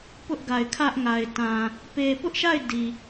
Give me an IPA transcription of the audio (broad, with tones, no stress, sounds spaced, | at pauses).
p ʊ˦ ʔ ɡ a˨ ɪ̯ kʰ ä˦ ʔ ŋ a˨ ɪ̯ t ã˨ | p e˨ p ʊ˦ ʔ ʃ a˦˨ ɪ̯ d i˨